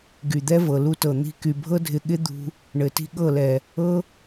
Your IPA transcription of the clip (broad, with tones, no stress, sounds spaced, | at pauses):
ɡ y˨ d̪ ɛ˦ v ɤ˨ l u˦ t ɤ˨ n̪ i̤˧ k y˨ bʱ ɤ˦ dʱ ɪ˧ ɠ ɪ˦ d̪ ṳ˧ | ɳ ɘ˨ t i̤˦ ɠ ɤ˦˨ l ɛ˨ | ɤ˦